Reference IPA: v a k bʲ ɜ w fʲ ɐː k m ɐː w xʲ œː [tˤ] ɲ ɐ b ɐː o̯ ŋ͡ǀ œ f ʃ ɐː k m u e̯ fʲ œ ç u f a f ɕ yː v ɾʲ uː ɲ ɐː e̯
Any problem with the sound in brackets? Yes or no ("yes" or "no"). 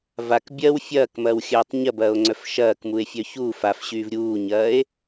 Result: no